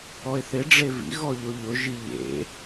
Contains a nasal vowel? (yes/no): no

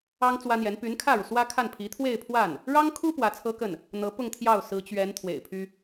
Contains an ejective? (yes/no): no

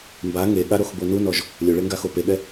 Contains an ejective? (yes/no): no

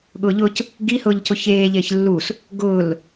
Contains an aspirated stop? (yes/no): no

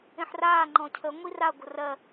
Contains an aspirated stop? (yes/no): yes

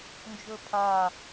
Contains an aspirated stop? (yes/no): yes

